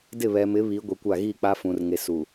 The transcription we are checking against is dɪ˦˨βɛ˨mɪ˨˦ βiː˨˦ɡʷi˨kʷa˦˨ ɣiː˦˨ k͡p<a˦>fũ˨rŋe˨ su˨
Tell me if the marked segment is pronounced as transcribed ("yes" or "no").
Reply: yes